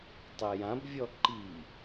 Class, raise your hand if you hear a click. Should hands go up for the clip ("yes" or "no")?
yes